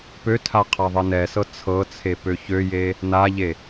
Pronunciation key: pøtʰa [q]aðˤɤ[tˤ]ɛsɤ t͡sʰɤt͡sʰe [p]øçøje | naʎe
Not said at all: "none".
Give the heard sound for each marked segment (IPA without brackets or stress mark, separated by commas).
qʰ, n, p